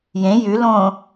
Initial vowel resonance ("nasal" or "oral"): nasal